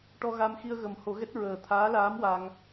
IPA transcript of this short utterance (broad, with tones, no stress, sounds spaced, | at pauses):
ʈ ɔ˧ ɣ a˧ m x i˧ ə̯ ɣ ə˨˩˦ m h o˨˩˦ ɣ ɛ˦˥ t̚ ɹ əː˨˩ t̪ʰ aː˧˥ l aː˧˥ m w a˧ ŋ